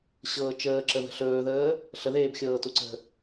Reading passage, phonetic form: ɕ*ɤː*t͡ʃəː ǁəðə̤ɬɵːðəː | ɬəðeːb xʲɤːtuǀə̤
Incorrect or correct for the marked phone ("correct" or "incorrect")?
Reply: correct